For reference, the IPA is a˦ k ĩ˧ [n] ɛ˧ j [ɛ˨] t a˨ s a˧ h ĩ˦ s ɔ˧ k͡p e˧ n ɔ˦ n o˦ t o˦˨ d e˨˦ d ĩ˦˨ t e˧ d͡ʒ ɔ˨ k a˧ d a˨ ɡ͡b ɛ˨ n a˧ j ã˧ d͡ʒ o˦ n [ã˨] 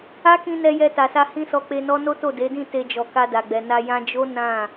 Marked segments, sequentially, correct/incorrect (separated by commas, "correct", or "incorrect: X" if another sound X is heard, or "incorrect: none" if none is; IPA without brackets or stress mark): correct, incorrect: ɛ˧, incorrect: ã˦˨